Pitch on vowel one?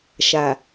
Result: low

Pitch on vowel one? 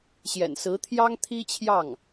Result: low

